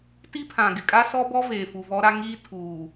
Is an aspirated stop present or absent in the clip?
present